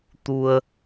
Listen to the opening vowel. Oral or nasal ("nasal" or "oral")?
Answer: oral